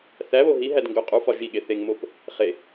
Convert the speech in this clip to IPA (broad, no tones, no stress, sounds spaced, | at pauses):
θ æ β o ɦ i ɦ æ d ŋ ɡ o qʼ u f ɒ ʒ i ɠ e θ e ŋ m o p | χ e